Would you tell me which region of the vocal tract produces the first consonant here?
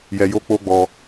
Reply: palate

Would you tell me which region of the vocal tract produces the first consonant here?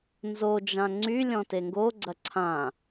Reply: tongue tip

